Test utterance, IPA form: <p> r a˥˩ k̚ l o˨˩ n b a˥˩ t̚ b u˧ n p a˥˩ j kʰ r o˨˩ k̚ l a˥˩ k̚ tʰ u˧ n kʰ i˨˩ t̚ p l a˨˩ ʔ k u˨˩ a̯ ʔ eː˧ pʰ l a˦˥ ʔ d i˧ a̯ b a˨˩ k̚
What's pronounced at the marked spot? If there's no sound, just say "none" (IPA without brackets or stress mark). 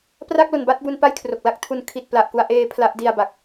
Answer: p